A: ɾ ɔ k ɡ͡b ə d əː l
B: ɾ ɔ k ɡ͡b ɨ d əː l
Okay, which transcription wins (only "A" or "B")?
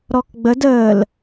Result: A